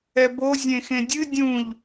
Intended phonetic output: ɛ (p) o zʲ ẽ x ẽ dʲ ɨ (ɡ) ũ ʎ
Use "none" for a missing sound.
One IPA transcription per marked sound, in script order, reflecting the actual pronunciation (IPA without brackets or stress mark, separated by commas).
b, dʲ